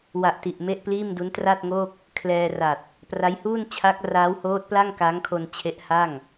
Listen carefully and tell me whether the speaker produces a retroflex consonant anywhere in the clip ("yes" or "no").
no